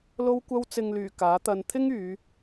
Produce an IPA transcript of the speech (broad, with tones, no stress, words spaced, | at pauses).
lo˧wkʷɐ˧wt͡sɪ˨ŋlyː˨˩ kaː˨˥t̪ɐ˧n t̪ʰɪ˥ŋyː˨˧